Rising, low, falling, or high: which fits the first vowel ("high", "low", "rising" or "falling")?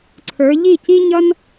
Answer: rising